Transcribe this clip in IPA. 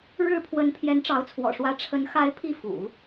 ɻ ɻ̩˥˩ pʰ w ə˧˥ n pʰ j ɛ˧˥ n ʈ͡ʂ ɑ˧˥ ʊ̯ t͡sʰ w ɔ̰˨˩ ʂ w ä˧˥ ʈ͡ʂʰ ə˧˥ n x a˧˥ ɪ̯ pʰ i˥˩ f ṵ˨˩˦

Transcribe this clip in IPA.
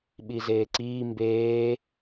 ɓ i z eː ǀ iː m b eː

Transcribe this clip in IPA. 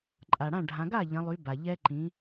ǃʼ a˩ ɽ ã˥˩ ɖʱ ã˩˧ ɡ a˥˩ ʎ ɐ̃˩˧ lˠ y˩˧ b a˩ ʎ ɛ˧ ǃ ĩ˩˧

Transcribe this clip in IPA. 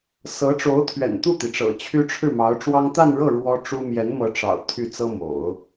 s ɤ˧˥ ʈ͡ʂ o˧˥ ʊ̯ t̪ʰ ɥ ɛ̰˨˩ n t̪ u˥˩ t̪ i˩ ʈ͡ʂ ɤ̰˨˩ t͡ɕʰ y˥ ʈ͡ʂʰ ɻ̩˥˩ m ɑ˧˥ ʊ̯ ʈ͡ʂ w ɑ˥ ŋ t̪ a˥˧ n ɻ ɤ˥˩ ɻ w ɔ˥ ʈ͡ʂ u˥ m j ɛ˧˥ n m ɤ˧˥ ʈ͡ʂ ɑ̰˨˩ ʊ̯ t̪ʰ y˥˩ t͡s ɤ˥ m o̰˨˩˦ ʊ̯

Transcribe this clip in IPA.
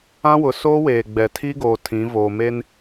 ã˦ w ʊ˨˦ s oː˦ w eː˨ ɡ͡b ɛ˨ tʰ iː˦ ɡ oː˨ tʰ ĩ˨˦ v oː˨ m e˦ n

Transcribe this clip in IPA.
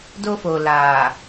d o˦ f o˨ l aː˨

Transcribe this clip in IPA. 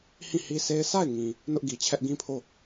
h ĩ˦˨ h i˦ s e˦ ɪ̯ sʰ a˦˨ ɪ̯ ŋ ĩ˨ | n ʊ˦ ʔ ɡ i˨ t͡ɕʰ ɛ˦ ʔ ɡ ĩ˦ pʰ o˦˨

